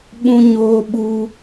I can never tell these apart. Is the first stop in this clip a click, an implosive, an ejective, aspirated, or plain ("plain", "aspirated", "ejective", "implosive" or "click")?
implosive